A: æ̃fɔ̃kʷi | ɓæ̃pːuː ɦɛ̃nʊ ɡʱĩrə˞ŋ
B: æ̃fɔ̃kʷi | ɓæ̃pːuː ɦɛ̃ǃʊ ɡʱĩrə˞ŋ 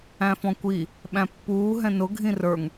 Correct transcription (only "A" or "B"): A